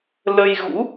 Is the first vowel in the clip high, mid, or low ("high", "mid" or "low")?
mid